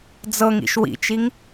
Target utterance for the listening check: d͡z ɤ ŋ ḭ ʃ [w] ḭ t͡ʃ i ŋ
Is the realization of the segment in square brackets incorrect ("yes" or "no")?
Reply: no